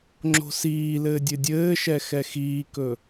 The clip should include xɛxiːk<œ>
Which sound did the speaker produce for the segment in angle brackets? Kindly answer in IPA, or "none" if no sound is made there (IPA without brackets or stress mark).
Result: ɵ